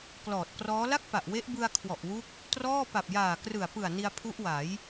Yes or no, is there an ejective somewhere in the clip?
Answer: no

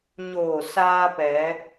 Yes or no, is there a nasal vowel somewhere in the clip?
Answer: no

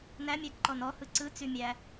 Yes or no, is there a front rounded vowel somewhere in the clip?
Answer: yes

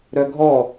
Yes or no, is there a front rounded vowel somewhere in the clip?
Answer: yes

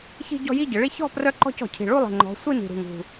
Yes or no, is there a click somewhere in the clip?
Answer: yes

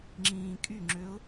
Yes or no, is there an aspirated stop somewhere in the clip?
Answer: no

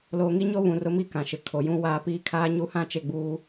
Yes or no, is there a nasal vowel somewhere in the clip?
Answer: yes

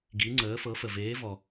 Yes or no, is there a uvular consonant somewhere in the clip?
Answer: no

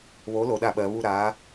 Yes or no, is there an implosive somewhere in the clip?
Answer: yes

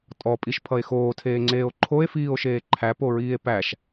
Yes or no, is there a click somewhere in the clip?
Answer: yes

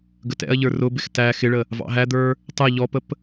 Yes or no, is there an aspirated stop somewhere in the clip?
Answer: no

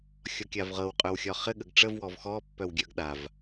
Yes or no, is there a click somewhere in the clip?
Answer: no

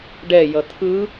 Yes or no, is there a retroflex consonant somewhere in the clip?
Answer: yes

